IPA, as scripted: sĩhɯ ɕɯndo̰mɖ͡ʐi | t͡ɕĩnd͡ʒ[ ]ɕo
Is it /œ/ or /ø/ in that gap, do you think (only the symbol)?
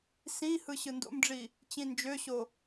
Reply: ø